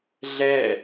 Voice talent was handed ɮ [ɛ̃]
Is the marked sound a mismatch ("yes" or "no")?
yes